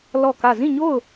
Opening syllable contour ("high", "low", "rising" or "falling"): falling